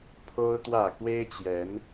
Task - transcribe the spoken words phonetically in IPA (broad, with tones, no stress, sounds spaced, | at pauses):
pʰ o˦ ʊ̯ t̪ w ä˥˨ k w e˦ ɪ̯ t͡ɕ j ɛ˨˦ n